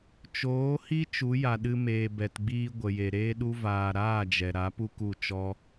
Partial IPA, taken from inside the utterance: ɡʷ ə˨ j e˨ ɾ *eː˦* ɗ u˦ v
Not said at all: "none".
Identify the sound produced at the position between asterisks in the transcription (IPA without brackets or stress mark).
eː˦